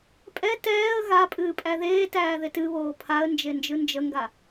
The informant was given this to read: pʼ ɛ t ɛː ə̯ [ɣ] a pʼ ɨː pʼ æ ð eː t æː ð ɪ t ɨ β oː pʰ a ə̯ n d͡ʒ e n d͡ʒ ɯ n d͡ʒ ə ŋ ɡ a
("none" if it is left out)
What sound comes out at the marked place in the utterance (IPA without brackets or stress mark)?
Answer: ɣ